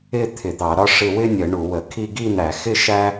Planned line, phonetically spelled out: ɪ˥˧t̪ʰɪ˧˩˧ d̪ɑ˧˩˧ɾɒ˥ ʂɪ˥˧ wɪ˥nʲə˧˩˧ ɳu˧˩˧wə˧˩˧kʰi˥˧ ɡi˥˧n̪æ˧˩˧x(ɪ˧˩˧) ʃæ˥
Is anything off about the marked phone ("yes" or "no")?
yes